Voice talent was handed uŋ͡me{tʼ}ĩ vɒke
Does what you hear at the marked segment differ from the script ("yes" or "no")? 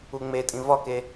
no